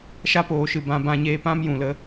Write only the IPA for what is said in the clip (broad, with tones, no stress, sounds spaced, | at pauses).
ʃ a˦ p oː˨ ʃ ɨ˨ b ã˧ b ã˧ ɲ eː˧ p ã˦ m j ũ˨ l ə˨˦